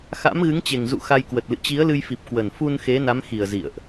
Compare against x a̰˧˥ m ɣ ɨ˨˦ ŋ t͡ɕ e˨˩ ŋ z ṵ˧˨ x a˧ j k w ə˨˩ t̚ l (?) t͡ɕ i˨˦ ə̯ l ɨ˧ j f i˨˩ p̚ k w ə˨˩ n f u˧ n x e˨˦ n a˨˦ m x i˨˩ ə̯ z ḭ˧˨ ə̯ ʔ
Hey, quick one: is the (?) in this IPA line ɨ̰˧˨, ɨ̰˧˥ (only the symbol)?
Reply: ɨ̰˧˨